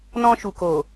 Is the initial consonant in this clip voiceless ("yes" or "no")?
no